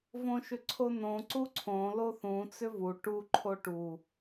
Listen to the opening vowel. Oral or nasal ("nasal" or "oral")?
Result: nasal